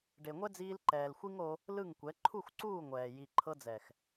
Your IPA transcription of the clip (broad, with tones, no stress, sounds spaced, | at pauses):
ɖ e˨ ŋʷ ɛ˦ d͡z iː˧ l ǃ ɛː˨ l xʷ i˦ ŋ o˧ | l ɯ˦˨ ŋ kʷ ɛ˨˦ ǃʰ u˦˨ x ǀ uː˦˨ ŋʷ ɛː˨ j i˨ ǃʰ ɤ˧ d͡z ɛ˨ x